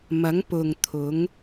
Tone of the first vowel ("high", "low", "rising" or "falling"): rising